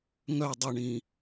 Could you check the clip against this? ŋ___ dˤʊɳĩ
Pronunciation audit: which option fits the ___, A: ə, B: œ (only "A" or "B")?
B